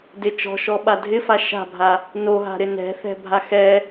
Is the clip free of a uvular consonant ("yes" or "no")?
yes